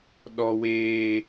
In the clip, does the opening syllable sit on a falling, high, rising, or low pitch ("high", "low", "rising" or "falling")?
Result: high